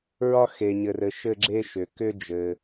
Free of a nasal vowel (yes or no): yes